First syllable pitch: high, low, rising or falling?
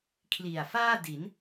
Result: low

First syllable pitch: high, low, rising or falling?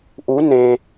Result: rising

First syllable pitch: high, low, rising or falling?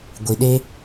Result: low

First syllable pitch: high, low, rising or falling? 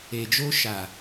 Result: low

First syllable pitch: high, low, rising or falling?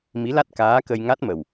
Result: rising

